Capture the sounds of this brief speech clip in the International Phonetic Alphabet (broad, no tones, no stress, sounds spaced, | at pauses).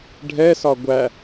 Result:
ɖʱ ɛ s ɒ ɡʷ æ